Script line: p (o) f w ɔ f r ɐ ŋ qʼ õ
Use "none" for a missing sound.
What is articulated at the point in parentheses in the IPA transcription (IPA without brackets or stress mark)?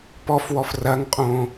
ɔ